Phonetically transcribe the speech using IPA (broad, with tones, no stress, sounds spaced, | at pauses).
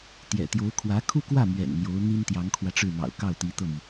t̪ j ɛ̰˨˩ t̪ j o˧˥ ʊ̯ kʰ w ä˧˥ kʰ u˥˧ k w ä˥˩ m ɥ ɛ̰˨˩ n n̪ j o˧˥ ʊ̯ n̪ i˥ n t̪ j ɑ˧˥ ŋ kʰ w ä˧ ʈ͡ʂ ɻ̩˥˩ m ɑ̰˨˩ ʊ̯ k ɑ˥˩ ʊ̯ t̪ i˧˥ t̪ ɤ˥˩ m i˩